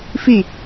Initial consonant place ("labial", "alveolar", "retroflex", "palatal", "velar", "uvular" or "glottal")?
labial